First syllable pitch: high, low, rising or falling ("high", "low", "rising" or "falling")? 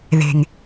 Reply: low